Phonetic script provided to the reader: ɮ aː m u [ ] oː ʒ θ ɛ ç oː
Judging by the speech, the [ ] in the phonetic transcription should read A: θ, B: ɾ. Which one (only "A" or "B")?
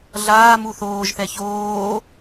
A